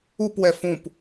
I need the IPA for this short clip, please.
u p w ɛ f ũ p

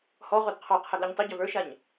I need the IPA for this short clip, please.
h ɔ ʁ o d qʰ ɔ qʰ ɛ ɡ l ʉ ɲ tˤ ʏ ɟ a v ə˞ ʃ a ɲ

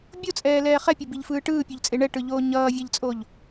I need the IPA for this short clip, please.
bʲ o t͡sʼ ɛː l ɛː χ ɛ pʲ o b i ʎ f ɯː ʈ ɯː pʲ o ʎ t͡sʼ e ɳ ɛ ʈ ɯ ʎ oː ɲ ʌː vʲ ɛ ʎ t͡sʼ o ʎ

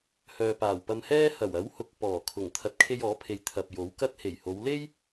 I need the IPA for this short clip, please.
h œː˨ p aː˨˩ w p ɐ˧ m h ɛː˥ h ɐ˨˩ w ɐ˨˥ w h ʊ˨ k̚ p ɔː˨˩ kʰ ʊ˨˩ ŋ t̪ʰ ɐ˨ t̚ kʰ e˧ j ɔː˨˥ pʰ e˨ j t̪ʰ ɐ˨ p̚ j o˨˥ w k ɐ˥ t̚ h e˨˩ j h o˨˧ w l e˥ j

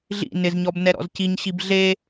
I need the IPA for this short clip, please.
ɮ ḭ n ɪ z ɲ ɔ b n ɛ ɾ ɔ̰ z c i ɲ ɕ i b ɮ e

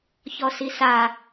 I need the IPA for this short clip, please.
ç ɔ s i s a

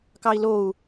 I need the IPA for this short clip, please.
k ɑ i̯ l o u̯

